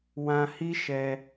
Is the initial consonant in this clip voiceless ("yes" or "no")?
no